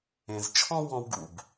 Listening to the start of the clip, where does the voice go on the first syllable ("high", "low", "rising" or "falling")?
low